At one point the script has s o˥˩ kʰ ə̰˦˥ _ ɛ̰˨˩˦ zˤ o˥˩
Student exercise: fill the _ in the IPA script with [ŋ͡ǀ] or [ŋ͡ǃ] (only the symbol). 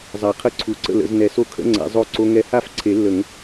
ŋ͡ǀ